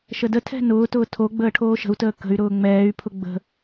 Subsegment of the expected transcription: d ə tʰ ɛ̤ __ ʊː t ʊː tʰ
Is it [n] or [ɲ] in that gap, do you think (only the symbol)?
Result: n